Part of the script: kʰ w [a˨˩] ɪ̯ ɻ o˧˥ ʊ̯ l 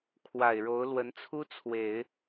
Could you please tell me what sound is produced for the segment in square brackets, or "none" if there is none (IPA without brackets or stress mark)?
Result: a˨˩